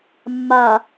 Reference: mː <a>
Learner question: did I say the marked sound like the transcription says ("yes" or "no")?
yes